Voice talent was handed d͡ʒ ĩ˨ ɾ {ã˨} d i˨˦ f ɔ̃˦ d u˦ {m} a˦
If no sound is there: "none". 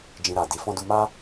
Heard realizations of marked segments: a˨, m

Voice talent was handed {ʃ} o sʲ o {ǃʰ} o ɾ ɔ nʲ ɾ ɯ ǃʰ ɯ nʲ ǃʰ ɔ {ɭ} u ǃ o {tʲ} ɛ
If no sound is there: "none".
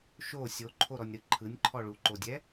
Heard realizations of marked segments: ʃ, ǃʰ, ɭ, dʲ

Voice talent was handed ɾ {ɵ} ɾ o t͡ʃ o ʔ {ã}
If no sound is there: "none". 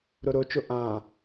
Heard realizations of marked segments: o, ã

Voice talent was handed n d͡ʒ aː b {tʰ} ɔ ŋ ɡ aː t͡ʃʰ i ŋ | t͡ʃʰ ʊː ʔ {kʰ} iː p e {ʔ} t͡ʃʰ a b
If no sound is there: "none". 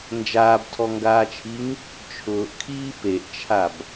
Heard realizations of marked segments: tʰ, kʰ, ʔ

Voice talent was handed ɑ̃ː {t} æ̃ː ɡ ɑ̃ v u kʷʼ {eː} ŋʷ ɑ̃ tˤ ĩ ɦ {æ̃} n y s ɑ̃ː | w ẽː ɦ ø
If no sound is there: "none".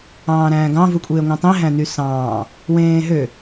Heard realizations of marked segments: ɾ, eː, æ̃

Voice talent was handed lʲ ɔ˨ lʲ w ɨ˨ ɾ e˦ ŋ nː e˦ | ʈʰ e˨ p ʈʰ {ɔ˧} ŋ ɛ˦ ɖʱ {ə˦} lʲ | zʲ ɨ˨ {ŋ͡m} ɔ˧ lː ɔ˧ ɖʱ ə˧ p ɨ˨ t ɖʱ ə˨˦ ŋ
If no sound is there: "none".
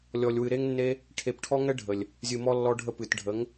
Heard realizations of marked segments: ɔ˦, ə˨, m

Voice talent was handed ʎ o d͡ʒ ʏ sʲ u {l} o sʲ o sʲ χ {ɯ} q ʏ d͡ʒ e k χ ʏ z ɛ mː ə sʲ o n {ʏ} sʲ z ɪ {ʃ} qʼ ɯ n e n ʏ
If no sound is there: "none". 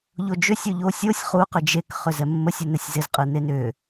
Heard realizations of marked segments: ʎ, u, ɛ, z

